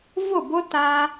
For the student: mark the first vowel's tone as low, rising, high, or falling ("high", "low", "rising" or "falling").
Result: falling